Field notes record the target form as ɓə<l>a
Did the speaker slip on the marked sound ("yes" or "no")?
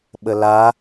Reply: no